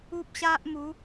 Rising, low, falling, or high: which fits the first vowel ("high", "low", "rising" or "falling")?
high